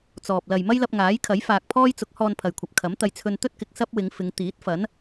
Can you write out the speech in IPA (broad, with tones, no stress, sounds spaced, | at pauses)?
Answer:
t͡s ɔː˨ p̚ l ɐ˨ j m ɐ˥ j l ɐ˧ p̚ ŋ aː˨˥ j kʰ ɐ˨˥ j f aː˨ k̚ pʰ ɔː˥ j t͡s ʊ˨˥ k̚ h ɔː˧ n pʰ ɐ˨ j kʷʰ ɐ˨ p̚ kʰ ɐ˨˥ m t̪ ɐ˧ j t͡sʰ ɵ˧ n t̪ ɵ˥ t̚ k ɪ˨ k̚ s ɐ˥ p̚ w ɪ˨˧ ŋ f ɪ˨˧ ŋ t̪ iː˨˥ t̚ f ɐ˨˥ n